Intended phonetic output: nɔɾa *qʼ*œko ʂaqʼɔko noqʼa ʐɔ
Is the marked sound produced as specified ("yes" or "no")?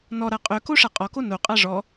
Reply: yes